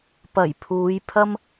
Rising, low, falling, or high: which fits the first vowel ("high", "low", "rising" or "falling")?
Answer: low